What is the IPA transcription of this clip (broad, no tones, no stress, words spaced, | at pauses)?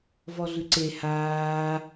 vɔɮʉǀe haː